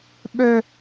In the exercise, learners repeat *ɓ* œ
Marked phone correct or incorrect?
correct